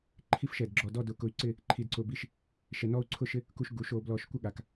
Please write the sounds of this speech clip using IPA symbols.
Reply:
ǃʰ i˥ f ʃ ɛ˧˩ d ɡ͡ǁ ɔ˧˩ d ɔ˥˧ d ʊ˧˩ k ʊ˧ y̯ ǀ ɪ˥˧ | ǃʰ i˧ d ǀ ʊ˧ b i˥˧ ʃ | ʃ ɛ˧ n ɔ˥ u̯ ǀʰ ʊ˥ ʃ ɪ˥ | k u˧ ʃ ɡ u˩˧ ʃ o˩˧ b l ɔ˧˩ ʃ kʷ ɪ˥ ɠ a˩˧ k

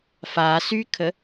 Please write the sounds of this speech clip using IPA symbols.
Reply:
f a s y kʰ ə

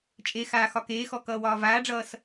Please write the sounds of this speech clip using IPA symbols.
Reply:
t͡ʃʼ e x aː x ɒ k eː x ɔ k ʌː w ɒː v aː ɖ͡ʐ ʌː s

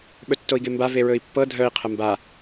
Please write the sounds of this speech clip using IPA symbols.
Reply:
ɓ ɵ tː o i̯ ɡ e m b a v e ɹ ɵ i̯ pː ɤ dʱ œ i̯ qʰ ə m b a

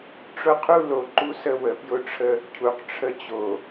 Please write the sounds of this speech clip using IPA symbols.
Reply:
ʈ͡ʂ ʊ˦ qʰ u˦ l o˨ ǃ u˦ s ə˦ w ə˨ p j ʊ˦ ʈ͡ʂʰ ə˦ | cʰ u˨ q ʈ͡ʂʰ ə˦ t͡ɕ o˨

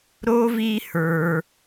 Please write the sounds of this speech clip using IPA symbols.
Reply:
ɾ o˦ v i˦ h ə˞˧

